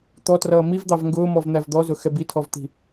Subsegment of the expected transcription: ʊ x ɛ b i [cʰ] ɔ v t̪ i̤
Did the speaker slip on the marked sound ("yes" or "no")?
yes